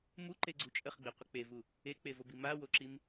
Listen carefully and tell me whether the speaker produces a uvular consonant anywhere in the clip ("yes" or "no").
yes